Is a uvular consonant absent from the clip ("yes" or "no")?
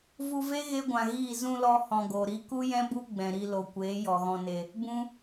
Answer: yes